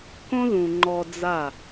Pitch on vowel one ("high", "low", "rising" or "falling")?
high